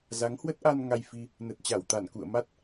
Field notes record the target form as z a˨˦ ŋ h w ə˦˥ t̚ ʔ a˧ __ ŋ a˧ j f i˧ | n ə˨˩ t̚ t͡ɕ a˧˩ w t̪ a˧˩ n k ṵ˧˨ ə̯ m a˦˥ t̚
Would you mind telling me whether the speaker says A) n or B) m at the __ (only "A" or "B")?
A